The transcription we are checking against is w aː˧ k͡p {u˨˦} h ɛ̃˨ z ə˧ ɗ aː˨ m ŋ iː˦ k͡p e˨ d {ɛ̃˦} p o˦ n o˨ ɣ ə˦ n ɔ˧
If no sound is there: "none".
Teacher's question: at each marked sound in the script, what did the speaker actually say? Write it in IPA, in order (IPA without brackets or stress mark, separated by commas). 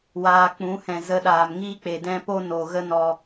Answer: ũ˨˦, ɛ̃˦